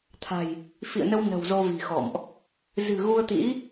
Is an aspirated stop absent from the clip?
no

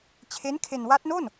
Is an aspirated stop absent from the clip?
no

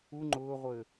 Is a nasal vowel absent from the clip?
yes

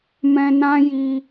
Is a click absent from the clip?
yes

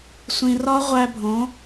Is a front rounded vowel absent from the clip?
yes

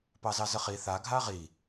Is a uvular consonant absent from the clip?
no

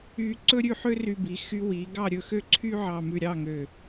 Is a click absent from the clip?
no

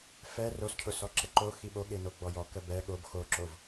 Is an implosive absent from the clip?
no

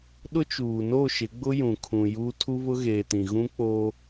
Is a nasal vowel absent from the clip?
no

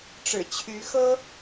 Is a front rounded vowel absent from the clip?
no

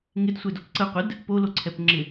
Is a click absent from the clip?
no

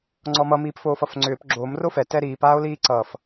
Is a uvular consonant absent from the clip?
yes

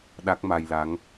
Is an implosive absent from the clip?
no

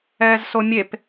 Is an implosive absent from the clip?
yes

